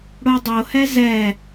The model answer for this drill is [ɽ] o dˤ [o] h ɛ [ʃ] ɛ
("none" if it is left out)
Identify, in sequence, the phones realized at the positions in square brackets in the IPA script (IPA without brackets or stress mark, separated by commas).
ɽ, o, z